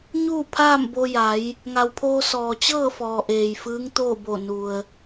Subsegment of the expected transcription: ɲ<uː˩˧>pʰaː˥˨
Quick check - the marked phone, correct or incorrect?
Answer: incorrect